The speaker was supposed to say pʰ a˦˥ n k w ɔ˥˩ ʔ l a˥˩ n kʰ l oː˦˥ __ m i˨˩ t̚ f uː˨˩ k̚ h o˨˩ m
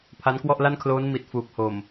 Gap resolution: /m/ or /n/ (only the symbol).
n